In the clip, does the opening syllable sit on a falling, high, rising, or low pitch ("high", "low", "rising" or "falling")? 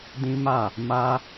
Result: high